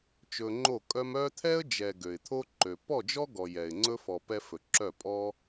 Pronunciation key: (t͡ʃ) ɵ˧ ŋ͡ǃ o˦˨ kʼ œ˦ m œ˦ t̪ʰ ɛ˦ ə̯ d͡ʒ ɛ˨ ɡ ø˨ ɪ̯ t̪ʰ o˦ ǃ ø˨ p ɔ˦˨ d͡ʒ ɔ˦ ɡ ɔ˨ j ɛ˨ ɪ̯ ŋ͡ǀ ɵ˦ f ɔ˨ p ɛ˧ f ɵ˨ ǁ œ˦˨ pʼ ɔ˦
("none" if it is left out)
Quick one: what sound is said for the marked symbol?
t͡ʃ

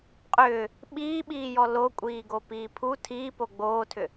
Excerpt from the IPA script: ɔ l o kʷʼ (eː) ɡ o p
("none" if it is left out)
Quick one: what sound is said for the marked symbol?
iː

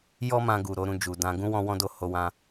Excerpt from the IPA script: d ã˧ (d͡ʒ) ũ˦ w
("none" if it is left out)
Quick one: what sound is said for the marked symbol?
ɡ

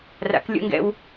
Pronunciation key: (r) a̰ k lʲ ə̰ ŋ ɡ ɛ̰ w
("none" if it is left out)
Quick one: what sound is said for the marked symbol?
r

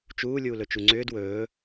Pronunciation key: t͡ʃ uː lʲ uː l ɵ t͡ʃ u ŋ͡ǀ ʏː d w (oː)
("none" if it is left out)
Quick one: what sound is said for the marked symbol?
ɵː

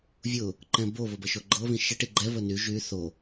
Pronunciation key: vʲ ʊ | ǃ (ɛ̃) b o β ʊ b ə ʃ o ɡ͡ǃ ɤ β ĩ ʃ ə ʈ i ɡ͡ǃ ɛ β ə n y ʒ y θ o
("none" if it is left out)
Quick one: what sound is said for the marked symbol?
ɛ̃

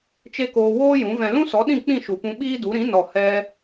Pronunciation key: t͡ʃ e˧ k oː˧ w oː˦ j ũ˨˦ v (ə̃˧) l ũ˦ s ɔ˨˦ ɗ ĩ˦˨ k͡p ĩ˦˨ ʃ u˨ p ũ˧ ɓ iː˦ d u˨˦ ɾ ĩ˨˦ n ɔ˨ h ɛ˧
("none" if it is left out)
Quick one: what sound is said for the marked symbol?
ɛ̃˧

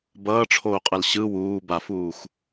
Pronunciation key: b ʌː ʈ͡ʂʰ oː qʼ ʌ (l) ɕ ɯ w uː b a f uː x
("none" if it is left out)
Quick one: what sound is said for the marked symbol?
l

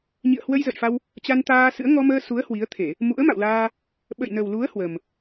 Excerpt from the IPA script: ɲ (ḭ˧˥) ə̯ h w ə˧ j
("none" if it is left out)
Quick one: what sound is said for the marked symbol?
ḭ˧˨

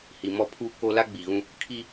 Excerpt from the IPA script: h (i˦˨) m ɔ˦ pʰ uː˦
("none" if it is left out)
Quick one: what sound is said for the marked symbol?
i˨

